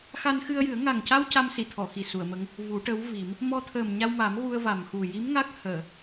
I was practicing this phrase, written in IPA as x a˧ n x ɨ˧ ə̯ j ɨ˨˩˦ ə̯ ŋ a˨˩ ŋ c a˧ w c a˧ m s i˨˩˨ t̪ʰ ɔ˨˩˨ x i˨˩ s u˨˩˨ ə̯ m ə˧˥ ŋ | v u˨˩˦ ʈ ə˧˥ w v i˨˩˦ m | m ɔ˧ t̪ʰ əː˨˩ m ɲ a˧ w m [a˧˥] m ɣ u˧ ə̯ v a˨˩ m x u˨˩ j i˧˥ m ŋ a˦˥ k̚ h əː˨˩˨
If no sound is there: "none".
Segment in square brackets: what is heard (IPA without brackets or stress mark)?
a˨˩˦